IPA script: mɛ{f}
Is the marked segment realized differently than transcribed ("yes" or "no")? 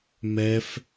no